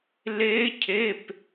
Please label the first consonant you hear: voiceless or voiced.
voiced